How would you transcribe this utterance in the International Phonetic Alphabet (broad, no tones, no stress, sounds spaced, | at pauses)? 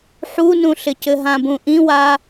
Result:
ħ u n ũ ɬ ɪ c ɘ ɦ ã b ũ ʔ ĩ w a